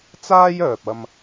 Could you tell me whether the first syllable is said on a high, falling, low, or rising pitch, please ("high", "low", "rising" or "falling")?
high